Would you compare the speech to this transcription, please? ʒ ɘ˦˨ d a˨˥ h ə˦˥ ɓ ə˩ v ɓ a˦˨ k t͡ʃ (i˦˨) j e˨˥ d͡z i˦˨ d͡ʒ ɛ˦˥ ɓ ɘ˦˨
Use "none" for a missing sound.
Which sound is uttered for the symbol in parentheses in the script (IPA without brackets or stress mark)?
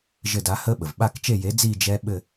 e˦˨